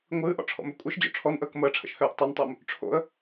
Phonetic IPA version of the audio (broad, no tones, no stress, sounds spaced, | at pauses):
ŋʷ ɨː ʔ ɔ̰ ʈ͡ʂʰ ɔ̰ m ø kʷʼ ɨ ʃ d͡ʑ o̰ ʈ͡ʂʰ ɔ n ʔ əː k m əː ʈ͡ʂʰ ə̰ ʃ h øː ʔ tˤ o n tˤ ʏː m | ʈ͡ʂʰ o̰ ə̯